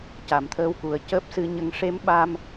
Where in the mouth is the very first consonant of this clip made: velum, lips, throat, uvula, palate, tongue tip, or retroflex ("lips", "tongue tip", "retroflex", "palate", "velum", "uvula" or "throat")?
palate